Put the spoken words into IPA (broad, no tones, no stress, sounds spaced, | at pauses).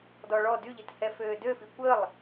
d ɔ ɭ ɔ d y ʎ i t h ɛ f øː d ø f i kʷ ə lˠ